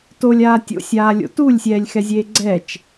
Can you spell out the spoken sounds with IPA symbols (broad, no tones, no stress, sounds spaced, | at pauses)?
t o lʲ aː tʲ o̰ sʲ aː lʲ o̰ t u lʲ sʲ ɛː lʲ x ɛ zʲ eː ɡ͡ǀ ɛ t͡ʃ